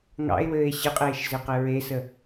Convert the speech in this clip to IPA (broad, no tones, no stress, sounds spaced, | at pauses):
ŋ ɑ̰ e̯ w ɘː e̯ ɕ ɘ qʼ eː ʃ z ɘ q ɘ ɹ e s ə